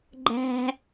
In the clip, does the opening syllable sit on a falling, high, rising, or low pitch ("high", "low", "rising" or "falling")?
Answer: high